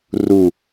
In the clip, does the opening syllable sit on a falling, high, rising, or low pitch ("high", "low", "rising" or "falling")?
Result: falling